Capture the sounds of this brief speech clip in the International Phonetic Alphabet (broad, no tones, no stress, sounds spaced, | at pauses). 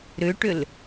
ɾ ʏ ʈ ʏ l